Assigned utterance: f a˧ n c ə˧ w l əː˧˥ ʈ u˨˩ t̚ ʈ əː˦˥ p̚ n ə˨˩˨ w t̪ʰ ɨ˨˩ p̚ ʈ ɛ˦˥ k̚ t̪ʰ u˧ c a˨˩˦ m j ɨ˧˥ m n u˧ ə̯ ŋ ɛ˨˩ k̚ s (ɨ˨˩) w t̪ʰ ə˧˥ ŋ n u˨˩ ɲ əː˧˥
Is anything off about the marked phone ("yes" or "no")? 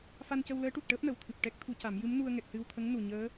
yes